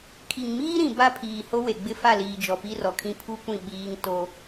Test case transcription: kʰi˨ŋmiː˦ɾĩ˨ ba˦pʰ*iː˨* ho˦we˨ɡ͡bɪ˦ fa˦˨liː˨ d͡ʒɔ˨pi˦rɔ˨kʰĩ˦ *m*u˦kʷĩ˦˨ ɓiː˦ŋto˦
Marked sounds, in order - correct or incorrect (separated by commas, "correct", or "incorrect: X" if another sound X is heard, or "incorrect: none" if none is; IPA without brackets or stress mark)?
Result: correct, incorrect: pʰ